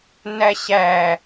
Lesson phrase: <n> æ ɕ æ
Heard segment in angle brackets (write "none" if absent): n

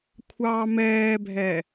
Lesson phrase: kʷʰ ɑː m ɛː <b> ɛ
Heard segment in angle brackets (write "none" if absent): bʱ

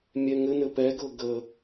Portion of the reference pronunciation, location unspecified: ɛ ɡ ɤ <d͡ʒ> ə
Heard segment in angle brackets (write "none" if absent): ɡ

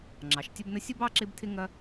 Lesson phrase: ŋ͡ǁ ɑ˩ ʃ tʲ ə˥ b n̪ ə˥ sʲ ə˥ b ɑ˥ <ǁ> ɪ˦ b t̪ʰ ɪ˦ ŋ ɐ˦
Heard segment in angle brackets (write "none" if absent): ǁ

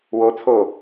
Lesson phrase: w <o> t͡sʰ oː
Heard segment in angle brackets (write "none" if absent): o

